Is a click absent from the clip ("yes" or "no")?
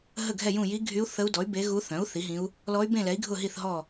yes